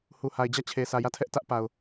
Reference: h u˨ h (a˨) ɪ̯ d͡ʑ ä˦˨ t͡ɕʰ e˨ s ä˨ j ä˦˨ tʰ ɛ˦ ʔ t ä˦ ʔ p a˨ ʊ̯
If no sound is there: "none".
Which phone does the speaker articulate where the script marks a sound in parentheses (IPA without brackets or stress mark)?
a˨